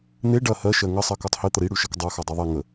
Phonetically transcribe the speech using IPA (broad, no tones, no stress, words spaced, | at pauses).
n̪e ɖɐ hɜ ʃɜŋə sˤɜkotˤhi t̪əɾi ɽʉʃɐkdˤɜ xɜdˤoðˤi ŋə